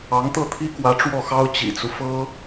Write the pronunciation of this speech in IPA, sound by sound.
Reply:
ɑ˧˥ ŋ t̪ ɤ˥˩ t̪ʰ i˥ k w ä˧˥ ʈ͡ʂ w ɔ˥˩ x ɑ˥ ʊ̯ t͡ɕ ḭ˨˩ t͡s u˦ f ɤ˥

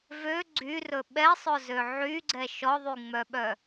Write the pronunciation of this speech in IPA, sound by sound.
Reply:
v ø ɡ͡ǀ y r ɵ ɓ ɛ sˤ ɵ z ø ʕ y ɡ͡ǀ ɛ ʃ ɔ ðˤ y ŋ͡m œ ɓ œ

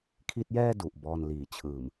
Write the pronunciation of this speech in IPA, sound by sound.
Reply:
kʰ i˦˥ t̚ j ɛː˥˩ d u˨˩ ʔ b ɔː˧ n l iː˩˦ t͡ɕʰ ɯː˨˩ m

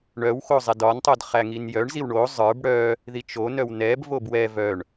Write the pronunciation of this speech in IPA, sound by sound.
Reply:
ɳ œ w x o zˤ ɛ d ɒ n tˤ o d χ æ ŋ i n j œ ɳ z i w ɳ o zˤ ə˞ b ɽ œ | ð i t͡ʃ o n œ w n ɛ b v o b w ɛ v œ ɳ

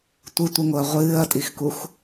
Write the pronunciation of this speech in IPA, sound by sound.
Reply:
tʷ ɨ tʷ ɨ ŋ o ɐ̯ ʁʷ ɨː ɐ̯ tʼ i x k u x

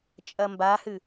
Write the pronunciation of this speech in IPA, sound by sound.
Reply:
t͡ʃʼ ɐ m b a h ɨ

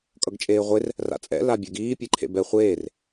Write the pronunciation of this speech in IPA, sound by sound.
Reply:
kʼ ʌ ɡ t͡ʃʼ eː ʁʷ e r | r a̰ t͡sʼ ɛ̰ l a bʲ ɛ ɡ iː pʲ e ǃʰ ḛ b ɛ χʷ eː r

